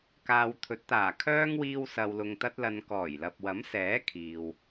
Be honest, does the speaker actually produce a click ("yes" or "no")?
no